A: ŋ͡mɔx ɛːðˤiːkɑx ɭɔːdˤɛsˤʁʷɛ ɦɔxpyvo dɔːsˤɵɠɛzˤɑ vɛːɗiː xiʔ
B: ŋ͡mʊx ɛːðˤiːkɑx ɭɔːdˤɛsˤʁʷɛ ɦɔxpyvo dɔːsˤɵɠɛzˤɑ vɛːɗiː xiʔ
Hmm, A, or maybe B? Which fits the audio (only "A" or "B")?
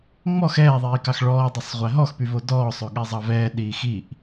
A